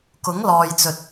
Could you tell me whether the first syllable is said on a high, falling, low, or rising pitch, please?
rising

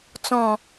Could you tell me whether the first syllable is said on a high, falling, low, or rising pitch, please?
low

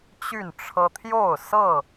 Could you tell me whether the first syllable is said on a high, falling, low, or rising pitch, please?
falling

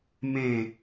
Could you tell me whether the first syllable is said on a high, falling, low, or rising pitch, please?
falling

